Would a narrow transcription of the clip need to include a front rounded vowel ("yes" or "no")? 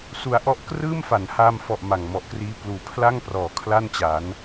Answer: no